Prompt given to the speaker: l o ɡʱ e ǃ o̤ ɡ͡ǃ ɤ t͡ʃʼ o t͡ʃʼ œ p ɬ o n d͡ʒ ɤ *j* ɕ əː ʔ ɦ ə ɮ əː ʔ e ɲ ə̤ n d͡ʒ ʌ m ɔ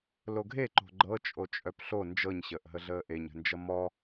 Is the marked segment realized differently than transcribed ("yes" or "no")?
yes